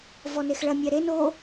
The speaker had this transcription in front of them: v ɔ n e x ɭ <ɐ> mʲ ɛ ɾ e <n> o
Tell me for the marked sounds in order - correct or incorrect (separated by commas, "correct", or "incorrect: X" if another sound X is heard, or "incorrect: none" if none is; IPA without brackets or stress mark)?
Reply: correct, correct